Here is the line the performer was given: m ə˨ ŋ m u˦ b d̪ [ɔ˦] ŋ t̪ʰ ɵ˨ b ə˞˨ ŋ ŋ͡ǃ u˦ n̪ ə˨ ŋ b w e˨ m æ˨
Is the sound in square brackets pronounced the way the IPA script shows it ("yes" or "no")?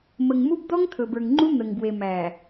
yes